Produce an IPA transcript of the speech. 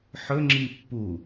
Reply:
ħ ɵ ŋ͡ǁ i pː u

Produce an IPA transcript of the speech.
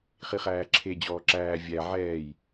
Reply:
χ i χ æː ǁʰ e d͡ʑ ɔː ǁ æː vʲ æ ʕ ɛː j

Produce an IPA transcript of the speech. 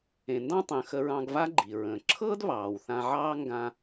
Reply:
ẽ˩ n d ɑ̃˧ tˤ ə̃ː˩ x ə˧ ɹ ɑ̃˧ ɡ v a˥ ɡ͡ǃ i˩ ɹ ə̃ː˩ ǁʰ ɤː˥ d β ɑː˩ w θ ã˧ ʕ ɑː˥ ŋ ɡ ã˧

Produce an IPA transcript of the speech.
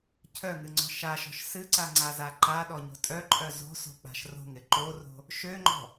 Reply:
cʰ œ ŋ ɨ ŋ͡ǀ ɔ̤ ʃ a ʃ ɔ̤ ʃ s ɨ ǀ a ŋ͡ǀ a z a ǃ a ɗ ɔ ɲ o̤ tʼ œ ǃʼ œ z o̤ s o̤ k͡p a̤ ʃ r o̤ ŋ ɪ ǃ o r o̤ | ʃ ø ŋ͡ǃ ɔ̤

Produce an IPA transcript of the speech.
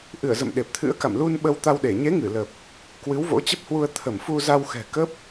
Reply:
ʔ ɨ˧˩ ə̯ z ə̰˧˨ m ɗ e˨˩ p̚ t̪ʰ ɨ̰˧˥ ə̯ k a̰˧˨ m l u˧ n ɓ ə˧ w t̪ a˧ w ɗ e˧˩ ɲ e˨˦ ŋ ɨ˧˩ l ə˨˩ p̚ | k w ɨ˨˦ w v o̰˧˥ t͡ɕ ə˦˥ p̚ h w u˧ ə̯ t̪ʰ ə˧˩ m f u˧ z a˧ w x ɛ̤˨˩ k ə˦˥ p̚

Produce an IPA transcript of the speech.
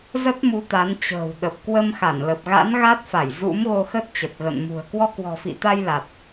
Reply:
z ə˦˥ t̚ m u˨˦ t̪ a˨˦ n t͡ɕ ə̤ː˨˩ w ɗ ə˨˩ p̚ k w ə˧ m x a˧˩ n l ə˨˩ p̚ ɣ a̰˧˥ n ɣ a˦˥ t̚ f a˧˩ j z ṵ˧˥ m ɣ o˧ x ə˦˥ t̚ t͡ɕ ə˨˩ t̚ ɣ ə̰˧˨ n m ṳ˨˩ ə̯ k w ɔ˧ k w ɔ̤˨˩ f ḭ˧˨ t̪ a˧ j l a˨˩ t̚

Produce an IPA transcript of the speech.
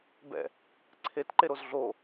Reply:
b ɛ̰ | ǀʰ e t ǃ e ɾ o z ɮ o

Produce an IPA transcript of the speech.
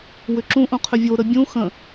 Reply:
w ʏ ǁ ũ ʔ ũ qʰ ʏ vʲ o ɾ ə bʲ ũ x ə̃

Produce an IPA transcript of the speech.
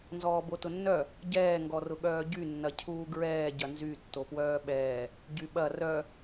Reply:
n z ɔː b o t ʊ nː œ | ɟ ɛː ŋ ɡ ɔ r ʊ ɠ œː ɟ y nː ɐ cʰ uː ɡ ɹ ɛː ɟ ɐ n z y tː o p w œː ɓ ɛː | ɟ y ɓ ɐ r œ

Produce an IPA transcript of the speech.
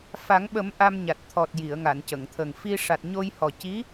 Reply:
f a˨˩˦ ŋ ɓ ə˨˩˦ m ʔ a˧ m ɲ a˨˩ t̚ t̪ʰ ɔ˨˩ t̚ j i˨˩˨ ə̯ ŋ a˨˩˨ n c ə˨˩˨ ŋ t̪ʰ ə˨˩ ŋ f i˧ ʂ a˨˩ t̚ ɲ o˧ j h ɔ˨˩ c i˧˥

